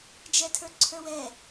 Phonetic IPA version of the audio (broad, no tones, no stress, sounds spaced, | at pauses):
d͡ʒ ɛ tʰ ə˞ ǀʰ ə˞ w ɛ